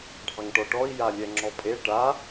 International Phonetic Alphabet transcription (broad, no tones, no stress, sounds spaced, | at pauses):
ɖʱ ɑ ŋ ʈ ɔ ʈ ɔ i̯ j a lʲ ɛ ŋ͡ǁ ɔ pʼ e ʈ a